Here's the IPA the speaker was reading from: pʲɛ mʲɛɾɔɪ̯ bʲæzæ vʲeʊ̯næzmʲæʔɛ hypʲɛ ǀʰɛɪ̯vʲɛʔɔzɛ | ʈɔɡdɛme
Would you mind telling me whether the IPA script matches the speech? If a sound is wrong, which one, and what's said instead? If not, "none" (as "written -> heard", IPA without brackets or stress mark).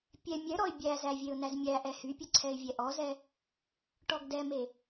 none